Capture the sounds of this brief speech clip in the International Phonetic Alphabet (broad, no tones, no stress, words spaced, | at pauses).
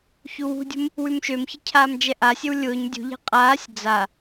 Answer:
çuwṳdʲṳm | wʉmʃømçə cʰaːmd͡ʒɛʔasʲɘw lʲʊːɲ dʲṳʎe̤ qʼaːsʲ d͡za